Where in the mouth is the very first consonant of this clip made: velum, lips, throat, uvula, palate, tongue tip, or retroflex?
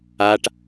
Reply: retroflex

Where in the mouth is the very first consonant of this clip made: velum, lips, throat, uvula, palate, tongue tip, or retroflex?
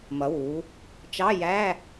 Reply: lips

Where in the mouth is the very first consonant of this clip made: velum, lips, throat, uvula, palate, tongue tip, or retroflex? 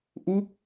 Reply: throat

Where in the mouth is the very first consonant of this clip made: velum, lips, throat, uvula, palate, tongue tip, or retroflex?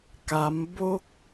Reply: velum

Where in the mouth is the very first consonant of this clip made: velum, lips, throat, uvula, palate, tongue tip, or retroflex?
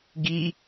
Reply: velum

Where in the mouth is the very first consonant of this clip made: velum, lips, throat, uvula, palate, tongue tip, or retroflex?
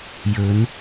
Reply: palate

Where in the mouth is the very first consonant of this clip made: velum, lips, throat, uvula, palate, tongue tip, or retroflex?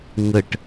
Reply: velum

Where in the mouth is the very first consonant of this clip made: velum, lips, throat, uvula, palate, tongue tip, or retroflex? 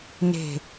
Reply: tongue tip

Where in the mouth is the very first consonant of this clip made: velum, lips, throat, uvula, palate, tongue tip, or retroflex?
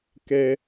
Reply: velum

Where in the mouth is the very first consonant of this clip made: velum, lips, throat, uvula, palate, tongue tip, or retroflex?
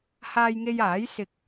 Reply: throat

